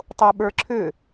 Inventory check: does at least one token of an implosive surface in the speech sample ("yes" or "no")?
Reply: yes